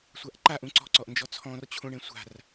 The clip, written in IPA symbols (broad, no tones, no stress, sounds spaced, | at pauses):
sʷ a ʔ ǃ a ʔ ũ ǀ ɔ̤ ǀ ɔ ʔ n d͡ʒ ɔ t͡sʰ ɔ̃ r t͡ɕʰ ũ ɳ ẽ sʷ a̤ r